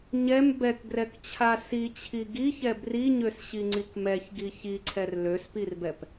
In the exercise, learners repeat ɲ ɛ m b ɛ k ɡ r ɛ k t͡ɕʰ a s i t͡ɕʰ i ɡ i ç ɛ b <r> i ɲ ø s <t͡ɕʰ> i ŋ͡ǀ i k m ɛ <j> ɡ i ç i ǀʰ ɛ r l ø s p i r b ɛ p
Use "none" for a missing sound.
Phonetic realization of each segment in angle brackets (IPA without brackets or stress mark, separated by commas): r, ɕ, ç